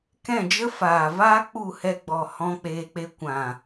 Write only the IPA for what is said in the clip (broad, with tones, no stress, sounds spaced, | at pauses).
k ɛ̃˦˨ d͡ʒ ə˦ f aː˨ v aː˦ k͡p u˦˨ h ɛ˧ ɡ͡b ɔ˨ h ɔ̃˦ k͡p eː˧ k͡p e˦ kʷ ã˨